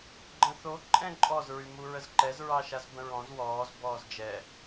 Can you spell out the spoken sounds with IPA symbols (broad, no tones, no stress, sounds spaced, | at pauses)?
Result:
ɡ͡ǃ ə̃ θ o ǃʼ ɛ̃ ǃʼ ɔ z ɹ y m u ɹ ə z ǃ ɛ z ɹ ɑ ʃ a z b ə̃ ɹ ɔ̃ z w ɔː z b ɔː z d͡ʒ ɛ